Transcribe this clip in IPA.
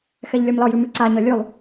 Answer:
x ɛ ʎ lʲ ɔ m l ɒ j ʉ m ʉ ǀ a ɲ ɒ lʲ ʉ lˠ

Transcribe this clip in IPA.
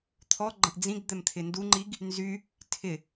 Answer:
t̪ʰ ɔ ɡ͡ǃ ə̃ ʔ d͡z ĩ ɡ d̪ ɛ m t̪ʰ ɪ n d u ŋ͡ǃ i ɡ | n z y | tʰ ɪ

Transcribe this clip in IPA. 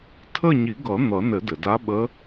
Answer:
tʰ ə˦˨ ɲ i˨˩˦ ɡ ʌ˨˩˦ n̪ ʌ˨˩˦ n ɘ˨˩˦ d ɘ˩ d a˧˥ ɓ ə˧˥

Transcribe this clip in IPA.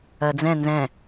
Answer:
ɜ d͡z ɛ̃ n z ɛ̃

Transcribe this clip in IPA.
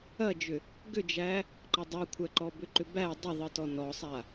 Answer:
ɐ d͡ʒ ʏ | ɡ ʏ d͡ʒ æ | ǃ ɐ dˤ a kʷʰ æ ǃ ɔ b ʏ ǃ ʏ b æ dˤ ʏ ðˤ ɯ t ɔ n ɔ sˤ a

